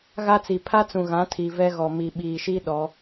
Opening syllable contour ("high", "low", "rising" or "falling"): high